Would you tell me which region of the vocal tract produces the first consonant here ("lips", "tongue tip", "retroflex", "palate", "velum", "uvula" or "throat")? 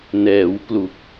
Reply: tongue tip